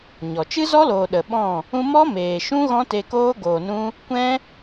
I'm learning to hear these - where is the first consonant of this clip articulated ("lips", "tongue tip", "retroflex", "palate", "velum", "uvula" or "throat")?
palate